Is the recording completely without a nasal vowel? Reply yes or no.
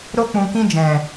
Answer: no